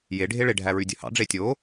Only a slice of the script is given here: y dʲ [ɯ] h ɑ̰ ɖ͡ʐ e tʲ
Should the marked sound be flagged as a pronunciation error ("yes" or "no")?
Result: no